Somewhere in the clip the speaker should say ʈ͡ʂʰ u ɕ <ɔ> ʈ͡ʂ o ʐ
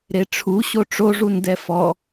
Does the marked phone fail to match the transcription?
yes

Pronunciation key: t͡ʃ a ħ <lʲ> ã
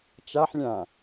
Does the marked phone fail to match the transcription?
no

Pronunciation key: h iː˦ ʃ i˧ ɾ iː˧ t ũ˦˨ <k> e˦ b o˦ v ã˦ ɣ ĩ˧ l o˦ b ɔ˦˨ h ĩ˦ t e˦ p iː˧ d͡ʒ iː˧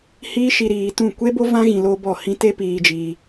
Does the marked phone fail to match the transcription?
yes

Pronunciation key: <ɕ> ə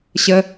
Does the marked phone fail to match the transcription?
no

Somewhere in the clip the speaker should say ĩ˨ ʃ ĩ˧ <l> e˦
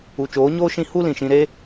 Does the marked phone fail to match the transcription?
yes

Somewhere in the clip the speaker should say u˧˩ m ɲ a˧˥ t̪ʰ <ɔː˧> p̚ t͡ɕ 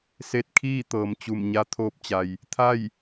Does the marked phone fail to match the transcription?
yes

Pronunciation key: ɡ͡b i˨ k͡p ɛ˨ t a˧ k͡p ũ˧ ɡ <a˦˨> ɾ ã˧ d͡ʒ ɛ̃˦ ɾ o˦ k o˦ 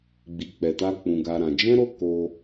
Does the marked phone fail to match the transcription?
yes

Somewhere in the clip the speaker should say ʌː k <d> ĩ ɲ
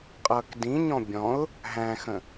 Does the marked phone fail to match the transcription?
no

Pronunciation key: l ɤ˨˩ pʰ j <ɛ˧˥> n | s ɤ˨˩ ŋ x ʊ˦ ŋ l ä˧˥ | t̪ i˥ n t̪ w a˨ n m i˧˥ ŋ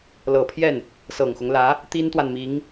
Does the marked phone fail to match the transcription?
yes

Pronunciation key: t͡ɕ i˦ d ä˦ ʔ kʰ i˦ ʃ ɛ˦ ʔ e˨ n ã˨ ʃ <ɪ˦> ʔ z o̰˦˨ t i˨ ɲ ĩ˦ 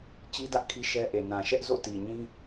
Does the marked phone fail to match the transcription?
yes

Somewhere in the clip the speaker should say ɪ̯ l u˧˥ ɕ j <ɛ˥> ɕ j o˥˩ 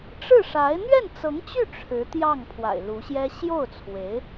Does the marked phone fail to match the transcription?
no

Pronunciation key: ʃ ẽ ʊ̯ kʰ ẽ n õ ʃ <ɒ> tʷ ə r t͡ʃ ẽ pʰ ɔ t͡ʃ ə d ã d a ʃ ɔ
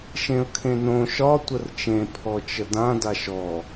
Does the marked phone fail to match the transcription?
no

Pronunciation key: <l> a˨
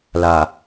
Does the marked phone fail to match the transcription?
no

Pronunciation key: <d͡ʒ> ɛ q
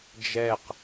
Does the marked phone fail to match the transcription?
no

